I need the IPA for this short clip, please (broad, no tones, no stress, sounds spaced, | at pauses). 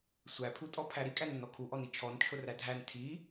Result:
sʷ æ pʰ u tʼ ɔ pʰ æ ɾ i kʼ æ n ʊ n ɔ kʰ u ʔ ɔ n i t͡ʃʰ ɔ n t͡ʃʰ ʊ r æ dʱ æ n tʰ i